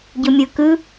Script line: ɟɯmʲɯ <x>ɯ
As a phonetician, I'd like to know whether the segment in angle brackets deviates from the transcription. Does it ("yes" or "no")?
yes